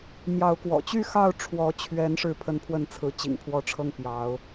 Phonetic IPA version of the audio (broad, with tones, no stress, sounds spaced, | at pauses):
m j ɑ˨˦ ʊ̯ k w ɔ̰˨˩ t͡ɕ y˥˨ x ɑ˥˨ ʊ̯ ʈ͡ʂʰ w ɔ˨˦ t͡ɕʰ ɥ ɛ˨˦ n ʂ ɻ̩˥˨ pʰ ə˥˨ n pʰ w ə˥˨ n t͡sʰ ɹ̩˨˦ t͡ɕ ḭ˨˩ ŋ pʰ w ɔ˨˦ ʈ͡ʂʰ ɤ˦ ŋ p j ɑ˨˦ ʊ̯